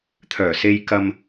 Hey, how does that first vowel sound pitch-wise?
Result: low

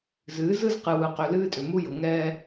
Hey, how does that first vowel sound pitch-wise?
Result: rising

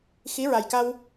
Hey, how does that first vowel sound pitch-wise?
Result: rising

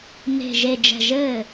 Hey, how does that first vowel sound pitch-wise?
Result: low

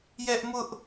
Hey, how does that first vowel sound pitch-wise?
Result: high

